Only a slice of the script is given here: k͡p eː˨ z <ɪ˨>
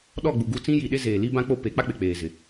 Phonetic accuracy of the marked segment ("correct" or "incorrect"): correct